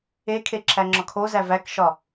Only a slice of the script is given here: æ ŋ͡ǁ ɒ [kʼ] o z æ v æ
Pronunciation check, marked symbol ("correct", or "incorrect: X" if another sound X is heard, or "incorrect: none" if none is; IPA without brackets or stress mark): incorrect: kʰ